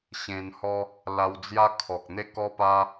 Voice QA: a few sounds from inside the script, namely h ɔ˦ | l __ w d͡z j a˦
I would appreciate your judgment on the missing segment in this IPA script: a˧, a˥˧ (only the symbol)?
a˧